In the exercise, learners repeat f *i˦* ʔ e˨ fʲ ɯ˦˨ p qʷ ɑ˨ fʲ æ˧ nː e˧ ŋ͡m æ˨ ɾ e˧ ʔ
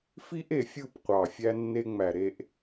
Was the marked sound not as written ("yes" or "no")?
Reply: no